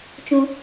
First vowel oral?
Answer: no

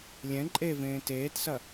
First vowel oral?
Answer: no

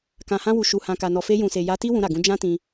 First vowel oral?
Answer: no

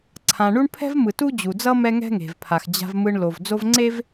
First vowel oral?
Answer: no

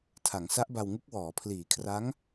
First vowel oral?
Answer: yes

